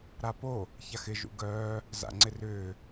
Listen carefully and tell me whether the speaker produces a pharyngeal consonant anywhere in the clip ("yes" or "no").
no